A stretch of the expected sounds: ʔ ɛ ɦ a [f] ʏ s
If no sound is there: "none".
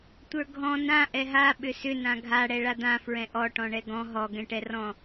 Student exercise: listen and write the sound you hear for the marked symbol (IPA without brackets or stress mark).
ɓ